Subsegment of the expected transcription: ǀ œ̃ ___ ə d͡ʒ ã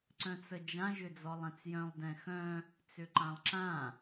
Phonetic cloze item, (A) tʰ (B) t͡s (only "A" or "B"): B